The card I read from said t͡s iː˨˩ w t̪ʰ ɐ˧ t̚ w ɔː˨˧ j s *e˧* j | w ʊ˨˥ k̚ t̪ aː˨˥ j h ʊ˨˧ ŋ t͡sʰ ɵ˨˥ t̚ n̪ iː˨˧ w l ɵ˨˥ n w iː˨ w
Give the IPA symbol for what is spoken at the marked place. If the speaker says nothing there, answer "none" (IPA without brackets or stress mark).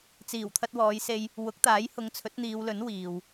e˧